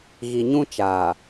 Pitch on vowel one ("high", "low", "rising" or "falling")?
low